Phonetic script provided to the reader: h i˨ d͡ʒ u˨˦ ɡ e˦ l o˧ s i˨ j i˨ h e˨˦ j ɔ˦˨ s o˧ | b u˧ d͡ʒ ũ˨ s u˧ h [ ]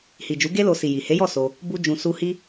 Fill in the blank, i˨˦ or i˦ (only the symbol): i˦